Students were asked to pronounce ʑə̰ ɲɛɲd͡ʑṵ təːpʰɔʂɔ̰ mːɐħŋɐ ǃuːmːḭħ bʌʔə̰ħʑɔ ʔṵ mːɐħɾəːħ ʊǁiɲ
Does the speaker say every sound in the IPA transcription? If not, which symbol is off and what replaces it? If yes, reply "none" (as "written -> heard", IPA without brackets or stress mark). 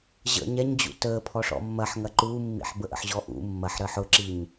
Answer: ʌ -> ə